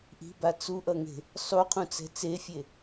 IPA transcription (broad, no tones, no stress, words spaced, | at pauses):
ʔi̤ba t͡suʔʌŋe̤ | sˤuqʰũt͡sɛ̤ t͡sefʲe